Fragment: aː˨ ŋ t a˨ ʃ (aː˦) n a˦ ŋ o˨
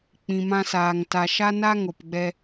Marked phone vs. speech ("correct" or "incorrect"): incorrect